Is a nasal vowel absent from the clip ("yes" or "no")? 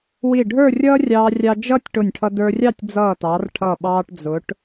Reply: yes